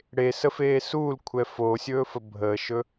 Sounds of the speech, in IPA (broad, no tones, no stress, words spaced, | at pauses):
ɽesəfeː suːlkʷʰɛ foːsʲɵːfə bʱəːʃɵ